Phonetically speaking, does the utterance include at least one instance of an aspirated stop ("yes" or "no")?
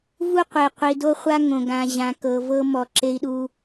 no